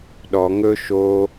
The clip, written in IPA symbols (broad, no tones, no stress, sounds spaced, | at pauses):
ɗ ɔ ŋ ɵ ʃ o